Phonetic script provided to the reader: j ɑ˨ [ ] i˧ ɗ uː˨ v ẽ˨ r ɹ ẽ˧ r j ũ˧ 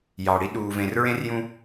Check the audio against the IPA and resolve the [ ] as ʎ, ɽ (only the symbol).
ɽ